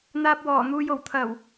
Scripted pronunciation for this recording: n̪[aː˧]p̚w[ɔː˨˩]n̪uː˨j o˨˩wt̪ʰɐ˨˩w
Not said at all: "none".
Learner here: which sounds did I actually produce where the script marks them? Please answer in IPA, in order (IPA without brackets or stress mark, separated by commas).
aː˧, ɔː˨˩